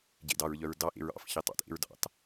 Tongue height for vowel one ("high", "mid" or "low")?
mid